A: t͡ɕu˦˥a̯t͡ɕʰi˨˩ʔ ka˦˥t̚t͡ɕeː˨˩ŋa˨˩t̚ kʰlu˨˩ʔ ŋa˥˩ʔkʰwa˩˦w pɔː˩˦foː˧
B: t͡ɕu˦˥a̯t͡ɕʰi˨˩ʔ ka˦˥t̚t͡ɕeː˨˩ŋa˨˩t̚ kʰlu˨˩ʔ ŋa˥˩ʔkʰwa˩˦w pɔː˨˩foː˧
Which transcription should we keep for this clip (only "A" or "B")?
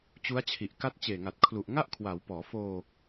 A